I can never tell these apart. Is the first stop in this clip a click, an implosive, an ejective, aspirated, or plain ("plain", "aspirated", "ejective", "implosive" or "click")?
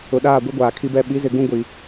implosive